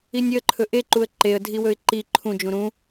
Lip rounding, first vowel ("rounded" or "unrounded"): unrounded